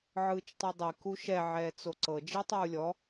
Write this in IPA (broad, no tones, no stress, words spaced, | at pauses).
ʕɯːt͡ʃtˤidˤi kuʃɛ ʕɛːt͡soǀɤ d͡ʒitˤuːlʲɔ